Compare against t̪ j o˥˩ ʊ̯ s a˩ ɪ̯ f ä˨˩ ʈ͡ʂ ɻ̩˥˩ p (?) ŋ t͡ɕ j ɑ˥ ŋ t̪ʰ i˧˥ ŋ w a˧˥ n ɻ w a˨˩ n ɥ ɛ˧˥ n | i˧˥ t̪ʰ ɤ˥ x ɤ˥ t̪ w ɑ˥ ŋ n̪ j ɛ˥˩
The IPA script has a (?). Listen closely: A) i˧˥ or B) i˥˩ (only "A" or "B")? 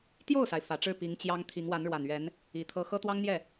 A